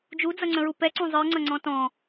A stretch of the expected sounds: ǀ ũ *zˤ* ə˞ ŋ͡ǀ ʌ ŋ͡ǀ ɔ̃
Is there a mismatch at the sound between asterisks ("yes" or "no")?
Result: no